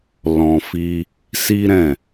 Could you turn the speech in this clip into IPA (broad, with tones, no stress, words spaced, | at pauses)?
lɔ̃˧fi˦ | si˦ɾɛ̃˦˨